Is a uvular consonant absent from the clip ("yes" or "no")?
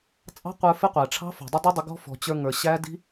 no